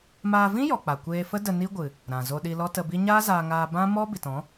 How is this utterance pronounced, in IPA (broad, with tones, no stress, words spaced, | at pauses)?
maː˧vĩ˦jɔ˨k͡pa˨ kʷeː˧fə˦də˧ ni˦ɡʷɨ˨ | ɾã˨zo˧ ɗi˧lɔ˦tə˧bi˦ ɲaː˦zaː˧ŋaː˧ bã˦ mɔ˦ bi˨tɔ̃˨˦